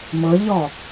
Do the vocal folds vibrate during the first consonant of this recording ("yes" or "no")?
yes